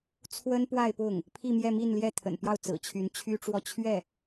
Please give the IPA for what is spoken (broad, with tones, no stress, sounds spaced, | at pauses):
t͡sʰ w ə˥ n p w a˥˧ ɪ̯ p ʊ˥˩ ŋ | pʰ i˥˧ m j ɛ˥˧ m i˥˧ n l j ɛ˥˩ t̪ʰ ə̰˨˩ n p j ɑ˥˩ ʊ̯ t͡s ɹ̩˨˩ t͡ɕʰ y˧˥ n t͡ɕʰ y˥ ʈ͡ʂ w ɔ˥˧ t͡ɕʰ ɥ ɛ˥˩